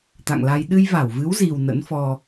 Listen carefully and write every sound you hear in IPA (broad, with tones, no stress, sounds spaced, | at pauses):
t̪ a̰˧˨ ŋ l a˧ j ɗ ɨ˧ j v a˧˩ w v ɨ˨˦ w z i˨˩ w n ə̰˧˥ n f ɔ˧